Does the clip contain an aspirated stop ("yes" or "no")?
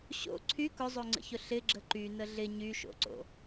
yes